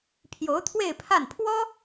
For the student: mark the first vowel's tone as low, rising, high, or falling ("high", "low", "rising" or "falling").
rising